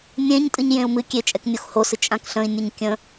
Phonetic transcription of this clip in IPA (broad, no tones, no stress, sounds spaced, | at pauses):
nʲ ẽ ɲ tʼ ɨ ɲ j ẽ u̯ m ɨ kʲ e t͡ʃʼ ɛ k nʲ o x h o s ɨ t͡ʃʼ ã k ɬ ə̃ i̯ nʲ ɨ ɲ kʲ ə̃